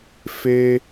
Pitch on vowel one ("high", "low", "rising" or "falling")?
high